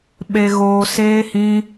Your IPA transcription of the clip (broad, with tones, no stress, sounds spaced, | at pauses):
ɓ e˨ ɣ oː˨ s eː˧ h ĩ˧